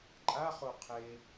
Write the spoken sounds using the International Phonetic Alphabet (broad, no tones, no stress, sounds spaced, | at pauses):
ǃʼ a χ o qʰ e